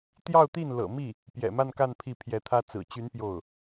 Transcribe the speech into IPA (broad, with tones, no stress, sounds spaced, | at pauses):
t̪ j ɑ˥˧ ʊ̯ t̪ i˥˩ n l ɤ̰˨˩ m i˥˩ | p j ɛ̰˨˩ m a˥˧ n k a˥˧ n pʰ i˥˩ pʰ j ɛ˧˥ t̪ʰ ä˥ t͡s ɹ̩˨˩ t͡ɕ y˧˥ n p j o˥˩ ʊ̯